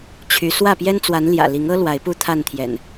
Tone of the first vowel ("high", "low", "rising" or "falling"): rising